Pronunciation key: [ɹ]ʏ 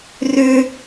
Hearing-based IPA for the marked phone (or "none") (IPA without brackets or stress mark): r